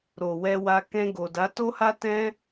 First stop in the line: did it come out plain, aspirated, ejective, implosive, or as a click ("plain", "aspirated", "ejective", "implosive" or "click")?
plain